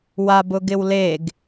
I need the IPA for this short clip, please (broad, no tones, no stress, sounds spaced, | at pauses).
w a b ʊ ɡ ɪ w l e ɡ